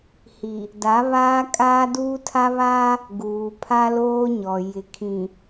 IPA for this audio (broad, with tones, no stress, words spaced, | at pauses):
hi˨ | da˨˦ βaː˦kʼaː˦duː˦ tʰa˦βaː˦ | ɡuː˨pʰa˦loː˦ɲɔ˨ jɪ˨kʰĩ˨